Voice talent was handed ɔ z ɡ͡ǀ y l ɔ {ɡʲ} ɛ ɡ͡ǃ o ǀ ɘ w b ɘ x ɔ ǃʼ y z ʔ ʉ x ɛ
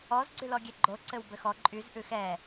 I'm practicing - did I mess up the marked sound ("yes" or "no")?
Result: no